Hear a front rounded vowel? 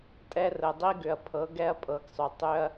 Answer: yes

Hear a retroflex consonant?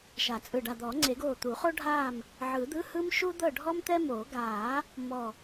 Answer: yes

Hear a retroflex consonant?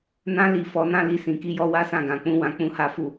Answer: no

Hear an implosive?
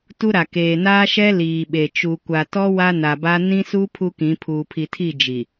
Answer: yes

